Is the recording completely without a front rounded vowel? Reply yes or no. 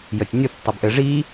yes